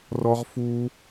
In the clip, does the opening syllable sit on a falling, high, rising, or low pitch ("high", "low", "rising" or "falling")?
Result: high